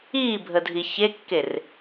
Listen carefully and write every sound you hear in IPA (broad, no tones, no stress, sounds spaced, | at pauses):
iː bʱ ə dʱ i ç e kː e r